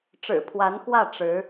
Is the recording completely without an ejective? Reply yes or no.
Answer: yes